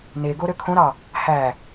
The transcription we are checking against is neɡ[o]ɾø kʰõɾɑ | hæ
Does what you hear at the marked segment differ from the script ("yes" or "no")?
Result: no